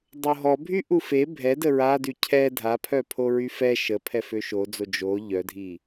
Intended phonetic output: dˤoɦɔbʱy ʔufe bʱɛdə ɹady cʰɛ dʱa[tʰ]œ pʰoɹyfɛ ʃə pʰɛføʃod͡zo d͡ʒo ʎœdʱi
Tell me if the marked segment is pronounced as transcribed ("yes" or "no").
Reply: no